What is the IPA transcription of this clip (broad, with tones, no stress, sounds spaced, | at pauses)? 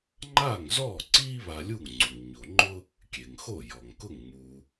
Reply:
ŋ͡ǃ aː˥˩ ŋ z ɔː˥˩ ǀ iː˥ β a˧ lʲ u˥˩ ŋ ŋ͡ǀ u˩ ŋ ɲ o˩ ŋ͡ǃ ʊ˥ | kʲ e˩ ŋ x o˥˩ j ɔ˩ ŋ k ʊ˥˩ ŋ ŋ͡m u˩